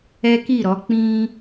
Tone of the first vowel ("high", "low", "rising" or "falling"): high